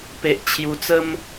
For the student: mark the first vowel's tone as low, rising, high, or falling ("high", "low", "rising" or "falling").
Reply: low